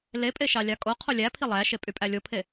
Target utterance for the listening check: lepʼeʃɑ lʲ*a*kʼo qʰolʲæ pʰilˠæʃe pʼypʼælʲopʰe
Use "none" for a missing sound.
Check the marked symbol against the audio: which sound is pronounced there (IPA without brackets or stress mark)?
ɑ